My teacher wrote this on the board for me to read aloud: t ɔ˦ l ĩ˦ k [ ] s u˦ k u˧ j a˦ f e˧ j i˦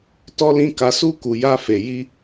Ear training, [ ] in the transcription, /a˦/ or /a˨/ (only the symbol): a˦